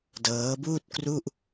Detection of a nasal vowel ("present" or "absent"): absent